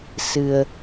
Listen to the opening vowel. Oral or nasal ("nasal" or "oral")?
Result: oral